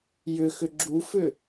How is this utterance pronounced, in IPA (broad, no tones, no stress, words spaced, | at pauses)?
jʏxʏ ɡ͡ǁufʏ